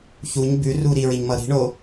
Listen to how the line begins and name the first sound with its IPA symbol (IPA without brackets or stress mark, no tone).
ç